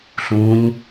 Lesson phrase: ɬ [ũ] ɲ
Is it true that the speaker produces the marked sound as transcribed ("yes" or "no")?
yes